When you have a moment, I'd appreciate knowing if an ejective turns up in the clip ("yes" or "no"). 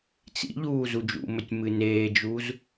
no